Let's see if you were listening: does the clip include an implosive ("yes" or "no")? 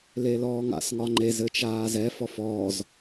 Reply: no